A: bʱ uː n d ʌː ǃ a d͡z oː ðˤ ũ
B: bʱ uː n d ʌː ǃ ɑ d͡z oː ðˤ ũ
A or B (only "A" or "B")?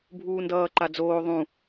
A